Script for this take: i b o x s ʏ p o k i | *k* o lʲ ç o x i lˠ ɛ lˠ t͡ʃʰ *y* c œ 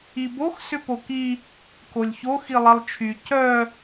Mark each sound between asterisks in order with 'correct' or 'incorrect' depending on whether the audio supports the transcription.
correct, correct

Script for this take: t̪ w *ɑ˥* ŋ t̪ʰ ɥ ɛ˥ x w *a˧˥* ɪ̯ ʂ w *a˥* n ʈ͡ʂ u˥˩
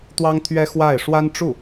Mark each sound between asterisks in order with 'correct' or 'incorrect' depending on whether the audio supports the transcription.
correct, incorrect: a˥˩, correct

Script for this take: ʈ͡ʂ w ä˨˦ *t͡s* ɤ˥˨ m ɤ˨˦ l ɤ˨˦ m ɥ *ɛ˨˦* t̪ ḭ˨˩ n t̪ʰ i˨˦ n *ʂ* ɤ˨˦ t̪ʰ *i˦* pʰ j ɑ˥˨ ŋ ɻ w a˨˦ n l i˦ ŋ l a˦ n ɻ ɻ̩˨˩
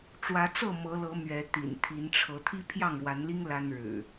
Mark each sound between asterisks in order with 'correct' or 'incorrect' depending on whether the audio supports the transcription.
correct, correct, incorrect: ʈ͡ʂʰ, correct

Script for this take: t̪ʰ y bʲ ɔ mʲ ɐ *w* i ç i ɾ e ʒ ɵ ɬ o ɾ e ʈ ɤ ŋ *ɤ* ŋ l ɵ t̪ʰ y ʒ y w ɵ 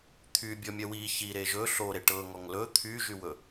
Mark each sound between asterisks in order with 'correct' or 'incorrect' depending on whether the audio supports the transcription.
correct, incorrect: ɔ

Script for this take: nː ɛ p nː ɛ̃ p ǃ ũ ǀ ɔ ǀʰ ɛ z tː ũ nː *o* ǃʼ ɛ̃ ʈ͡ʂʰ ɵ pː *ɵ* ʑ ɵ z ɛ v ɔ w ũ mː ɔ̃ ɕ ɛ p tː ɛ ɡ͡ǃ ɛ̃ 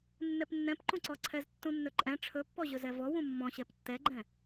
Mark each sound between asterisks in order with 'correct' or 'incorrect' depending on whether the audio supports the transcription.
incorrect: ɵ, incorrect: ɔ

